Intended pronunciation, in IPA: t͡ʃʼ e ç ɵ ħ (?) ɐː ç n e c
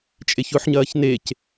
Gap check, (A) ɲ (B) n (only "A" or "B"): A